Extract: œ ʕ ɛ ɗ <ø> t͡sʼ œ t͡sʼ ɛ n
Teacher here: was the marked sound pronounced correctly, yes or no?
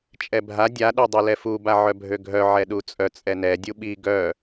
no